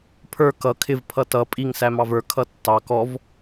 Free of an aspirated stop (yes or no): no